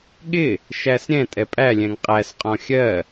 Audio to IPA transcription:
ɠ ɪ | ʃ æ s ɾʲ ɛ̃ tʼ ɛ pʼ æ lʲ ɛ̃ ŋ qʼ æ s qʼ ɔ̃ xʲ ɜ

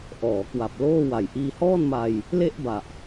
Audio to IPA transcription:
ʔ ɔː˩˦ k w a˨˩ p̚ l oː˥˩ w a˨˩ j ʔ iː˧ h ɔː˥˩ n m a˧ j | l e˥˩ ʔ b a˨˩ ʔ

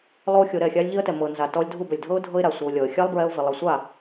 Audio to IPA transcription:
lˠ o˦ xʲ o˧ ɾ ɛ˦˨ xʲ a˦ lʲ ʎ i˦ ə̯ t ɛ˨ m ɤ˨ n z a˨ t ɔ˧ lʲ dʱ u˦˨ b ɛ˨ lʲ dʱ ɤ˦ ʊ̯ dʱ ɤ˦ ɪ̯ ɾ a˨ sʷ ɤ˧ ʊ̯ lʲ ɔ˨ ə̯ xʲ a˦ lˠ b ɹ ɛ˧ ʊ̯ v i˨ lˠ ɤ˨ sʷ a˦˨

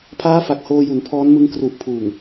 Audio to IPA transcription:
pʰ aː˦˥ f a˨˩ k̚ h oː˧ j u˩˦ n pʰ ɔː˦˥ n m ɯ˦˥ ŋ k r u˨˩ ʔ pʰ uː˨˩ ŋ

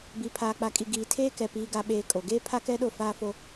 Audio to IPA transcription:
b i˨ pʰ aː˨ k͡p a˨ kʼ i˨ ɡ iː˨ tʰ eː˦ k ɛ˨ p iː˦ ɡ a˦ ɓ eː˦ kʼ o˨ ɡ eː˦ pʰ a˦ k ɛ˦ ɗ o˦˨ f aː˦ f o˦

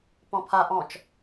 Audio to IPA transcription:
p ɔ̃ pʰ a ʔ ɔ̃ t͡ʃ

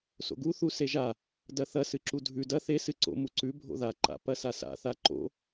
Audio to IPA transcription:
s o̰ ɡ u θ u s e ʒ a | d ɐ θ ɐ s ɨ ǁ u dʱ ʉ d ɐ θ e s ɨ ǀ o̰ m u ǀ ʉ bʱ o̰ ð a ǃ a̰ p ɐ s a s a̰ θ a ǃ o̰

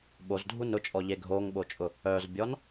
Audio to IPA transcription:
ɓ o z dʱ u n ʊ t͡ʃʼ ɔ ʎ e ɡʱ o ŋ ɓ o t͡ʃʼ ʊ | œ z bʲ ɔ n

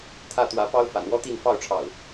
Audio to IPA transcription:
t̪ʰ ä˥˨ t̪ w ä˨˦ p ɑ˦ ʊ̯ f a̰˨˩ n w ɔ˦ t̪ i˥˨ n f ɑ˥˨ ʊ̯ ʈ͡ʂʰ ɑ̰˨˩ ʊ̯

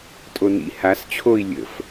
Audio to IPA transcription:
tʼ o n ḭ h a s t͡ɕʰ o i̯ lʲ ə̰ f

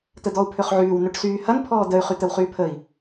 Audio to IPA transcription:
t̪ ə d̪ ɔ u̯ pʰ ø χ ʕ yː w n ø ʈ s yː h ɐ n pʰ ɔː d̪ ə y̯ χ y t̪ ə w χ yː pʰ ə i̯

